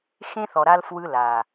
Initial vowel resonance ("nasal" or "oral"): nasal